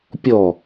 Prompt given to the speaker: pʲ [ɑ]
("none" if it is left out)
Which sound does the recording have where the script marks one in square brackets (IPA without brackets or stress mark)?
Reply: ɔ